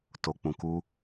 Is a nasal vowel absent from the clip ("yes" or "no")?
no